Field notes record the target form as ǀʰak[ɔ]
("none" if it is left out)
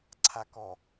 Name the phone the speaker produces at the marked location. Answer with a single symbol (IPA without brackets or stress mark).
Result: ɔ